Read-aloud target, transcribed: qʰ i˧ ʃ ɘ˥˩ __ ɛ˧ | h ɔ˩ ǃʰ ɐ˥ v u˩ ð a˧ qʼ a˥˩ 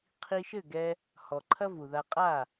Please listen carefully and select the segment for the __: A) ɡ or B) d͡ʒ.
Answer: A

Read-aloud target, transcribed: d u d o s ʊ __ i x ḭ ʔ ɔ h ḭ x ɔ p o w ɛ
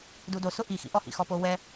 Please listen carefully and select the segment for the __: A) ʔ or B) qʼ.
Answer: A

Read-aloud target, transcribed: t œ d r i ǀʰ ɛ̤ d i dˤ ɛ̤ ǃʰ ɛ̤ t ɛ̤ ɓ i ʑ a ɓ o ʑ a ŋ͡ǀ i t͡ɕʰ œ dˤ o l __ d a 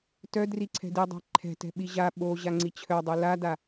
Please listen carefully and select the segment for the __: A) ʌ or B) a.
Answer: B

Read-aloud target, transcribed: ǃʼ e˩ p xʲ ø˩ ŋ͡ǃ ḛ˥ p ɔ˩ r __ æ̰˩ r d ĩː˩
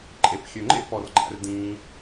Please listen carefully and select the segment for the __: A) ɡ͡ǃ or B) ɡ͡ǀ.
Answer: A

